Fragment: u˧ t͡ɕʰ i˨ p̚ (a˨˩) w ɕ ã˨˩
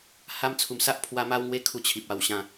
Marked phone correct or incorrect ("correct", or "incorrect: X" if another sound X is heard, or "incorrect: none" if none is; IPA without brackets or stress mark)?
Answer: correct